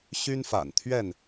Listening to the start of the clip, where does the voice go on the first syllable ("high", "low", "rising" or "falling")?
high